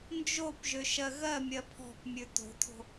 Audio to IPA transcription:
n d͡ʒ o p ʒ ø ʃ ɜ ɣ ɜ mʲ ɜ pʰ ɔ̤ p mʲ ʉ t o̤ tʰ o̤

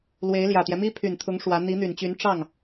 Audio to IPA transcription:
l w e˧˥ ɪ̯ l j ä˨˩ t̪ j ɛ˦ m i˥ pʰ y˨˩ n t̪ʰ ʊ˧˥ ŋ ʂ w ä˧˥ n̪ i˧˥ n̪ y˨˩ n t͡ɕ y˧˥ n ʈ͡ʂ ɑ˥˩ ŋ

